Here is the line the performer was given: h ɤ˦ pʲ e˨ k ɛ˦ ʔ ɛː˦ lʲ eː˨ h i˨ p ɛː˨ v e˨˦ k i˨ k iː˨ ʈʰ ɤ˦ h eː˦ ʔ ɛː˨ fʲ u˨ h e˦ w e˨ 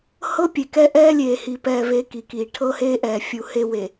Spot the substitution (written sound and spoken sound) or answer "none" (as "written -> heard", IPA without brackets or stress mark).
none